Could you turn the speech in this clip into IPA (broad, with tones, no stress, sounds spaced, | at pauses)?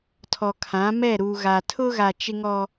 tʰ ɔ˨ kʰ ã˨˦ m ɛ˦˨ ɾ u˨ ɣ a˨ tʰ ʊ˦ ɣ a˨ t͡ʃ ɪ˦ ŋ ɔ˦